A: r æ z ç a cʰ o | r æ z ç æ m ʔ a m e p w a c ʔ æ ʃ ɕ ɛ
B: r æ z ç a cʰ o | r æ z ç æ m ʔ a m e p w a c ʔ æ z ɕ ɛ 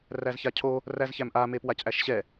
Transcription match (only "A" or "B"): A